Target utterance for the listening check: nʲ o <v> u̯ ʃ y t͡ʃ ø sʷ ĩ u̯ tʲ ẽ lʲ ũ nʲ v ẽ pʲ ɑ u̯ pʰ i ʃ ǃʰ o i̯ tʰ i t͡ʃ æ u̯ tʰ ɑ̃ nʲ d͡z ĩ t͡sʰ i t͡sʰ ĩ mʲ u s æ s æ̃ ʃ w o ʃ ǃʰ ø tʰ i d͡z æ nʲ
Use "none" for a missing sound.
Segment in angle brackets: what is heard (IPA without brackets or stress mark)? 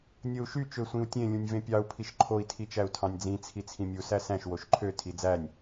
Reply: none